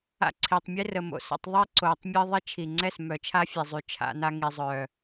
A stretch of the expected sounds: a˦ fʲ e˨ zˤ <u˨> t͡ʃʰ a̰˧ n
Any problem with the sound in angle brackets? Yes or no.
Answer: yes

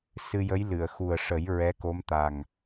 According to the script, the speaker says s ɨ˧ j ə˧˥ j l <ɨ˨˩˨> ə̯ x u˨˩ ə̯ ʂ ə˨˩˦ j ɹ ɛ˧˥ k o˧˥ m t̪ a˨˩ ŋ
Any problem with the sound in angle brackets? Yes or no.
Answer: no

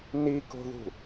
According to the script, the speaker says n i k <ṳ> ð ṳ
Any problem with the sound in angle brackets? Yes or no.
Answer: yes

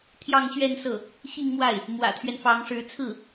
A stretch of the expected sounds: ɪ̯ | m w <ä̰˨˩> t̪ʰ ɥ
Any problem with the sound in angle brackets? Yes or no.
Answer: no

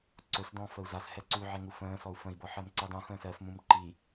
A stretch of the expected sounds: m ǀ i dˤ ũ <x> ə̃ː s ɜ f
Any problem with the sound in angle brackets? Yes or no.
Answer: no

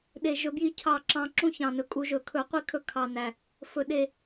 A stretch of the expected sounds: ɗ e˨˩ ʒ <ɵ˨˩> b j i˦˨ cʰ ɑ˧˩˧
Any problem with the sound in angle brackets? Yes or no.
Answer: yes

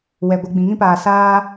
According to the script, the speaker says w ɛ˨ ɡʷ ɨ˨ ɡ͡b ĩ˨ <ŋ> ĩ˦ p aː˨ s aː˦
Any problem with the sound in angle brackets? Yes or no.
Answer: no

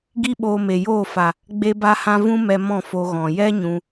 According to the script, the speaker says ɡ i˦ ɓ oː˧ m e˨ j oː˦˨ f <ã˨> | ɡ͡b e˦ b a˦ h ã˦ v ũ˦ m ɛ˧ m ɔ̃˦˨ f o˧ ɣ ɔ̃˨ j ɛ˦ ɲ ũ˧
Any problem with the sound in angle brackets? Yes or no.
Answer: yes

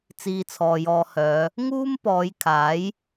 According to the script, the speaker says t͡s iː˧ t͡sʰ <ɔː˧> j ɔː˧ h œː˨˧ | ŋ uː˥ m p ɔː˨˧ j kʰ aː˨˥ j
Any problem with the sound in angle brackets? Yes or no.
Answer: yes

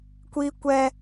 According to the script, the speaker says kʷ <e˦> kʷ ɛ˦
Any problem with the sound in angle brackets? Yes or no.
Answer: yes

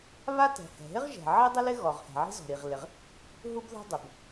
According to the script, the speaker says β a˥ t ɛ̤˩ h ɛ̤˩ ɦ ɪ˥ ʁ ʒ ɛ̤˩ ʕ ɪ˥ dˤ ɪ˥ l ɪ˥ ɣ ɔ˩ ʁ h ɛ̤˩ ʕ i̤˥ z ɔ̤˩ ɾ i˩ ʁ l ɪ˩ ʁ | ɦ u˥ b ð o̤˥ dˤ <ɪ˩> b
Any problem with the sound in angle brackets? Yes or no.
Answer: no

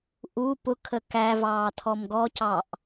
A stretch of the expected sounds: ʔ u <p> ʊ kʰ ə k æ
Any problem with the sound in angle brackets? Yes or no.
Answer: no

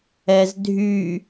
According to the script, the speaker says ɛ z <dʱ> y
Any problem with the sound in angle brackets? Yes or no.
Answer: no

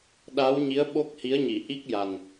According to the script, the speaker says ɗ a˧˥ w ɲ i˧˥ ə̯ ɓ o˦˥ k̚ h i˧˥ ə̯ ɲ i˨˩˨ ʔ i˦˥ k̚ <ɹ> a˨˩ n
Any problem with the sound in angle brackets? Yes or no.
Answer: yes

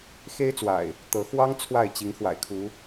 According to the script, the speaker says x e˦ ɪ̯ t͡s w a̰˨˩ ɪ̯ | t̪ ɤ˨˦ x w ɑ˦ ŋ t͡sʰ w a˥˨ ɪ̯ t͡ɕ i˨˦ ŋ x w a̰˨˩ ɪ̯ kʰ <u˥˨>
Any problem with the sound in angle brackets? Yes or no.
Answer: yes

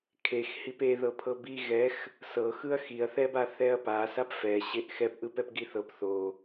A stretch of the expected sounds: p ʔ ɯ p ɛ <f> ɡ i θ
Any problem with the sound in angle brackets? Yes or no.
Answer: yes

